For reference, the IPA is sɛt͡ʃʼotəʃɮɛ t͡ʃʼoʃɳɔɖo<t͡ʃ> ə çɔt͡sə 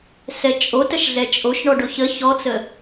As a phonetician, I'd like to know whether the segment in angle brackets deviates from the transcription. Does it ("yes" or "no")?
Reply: yes